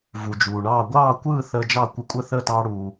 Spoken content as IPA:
v u˩ d͡ʒ uː˩ ɳ ɑː˥˩ ɡʷ ɑː˥˩ kʷ ɯː˥˩ θ əː˧ d͡ʒ ɑ˥˩ kʷ ə˧ kʷʼ ə˥˩ θ əː˥˩ t ɑː˧ ɽ uː˩

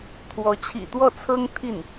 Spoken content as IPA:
t̪ʰ w ɔ˧˥ t͡ɕʰ ḭ˨˩ t̪ w ɔ˥˩ t͡sʰ ɤ˥ ŋ t̪ʰ i˥˩ n

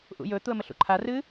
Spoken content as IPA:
ʔ ṵ j ɵ t̪ u ə̯ m ə ɬ ṵ ǃʰ a r ɨ

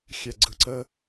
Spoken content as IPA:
xʲ ɛ ɡ͡ǀ ɯ ǀ ə

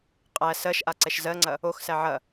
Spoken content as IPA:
qʼ æ s ɜ ʃ ʔ a ǀ ɛ ʃ z ɜ ŋ͡ǀ ɐ | o x s æ ʕ ɐ

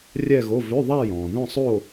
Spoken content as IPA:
rʲ ɛ˥˧ ɣ o˧˥˧ v ø˧˥˧ ðˤ a˥˧ j ɔ̃˨ ð œ̃˥˧ sˤ o˥˧

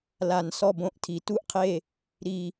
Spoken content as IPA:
l a˨˩˦ n s ɔ˦˨ b õ˦˨ ʔ tʰ i˨˩˦ t u˦˨ ʔ qʰ e˦˨ | ɾ i˦˨

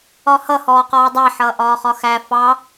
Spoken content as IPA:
ɒ h ʌ h ɔː q ɔː dˤ æ ħ ʌː ʔ ɒː χ ɒ x æ f ɑ

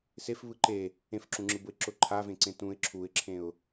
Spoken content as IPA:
s e f β ɯ ǃ e | ẽ f ǁ ũ ŋ͡ǁ ɯ b ʊ ɪ̯ ǁ ʊ ǃʰ a v ẽ ǀ ẽ t ũ ɪ̯ ǁʰ u ɪ̯ ǁʰ ẽ ʊ̯

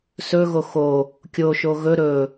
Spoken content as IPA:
s ɵ ɣ o x o | kʲ o ʃ o ɣ ɵ ɾ ɵ

